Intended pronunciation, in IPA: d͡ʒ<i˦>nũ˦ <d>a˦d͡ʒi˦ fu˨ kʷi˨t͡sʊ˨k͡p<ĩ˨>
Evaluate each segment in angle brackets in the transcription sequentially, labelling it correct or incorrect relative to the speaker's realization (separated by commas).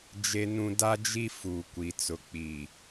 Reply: incorrect, correct, incorrect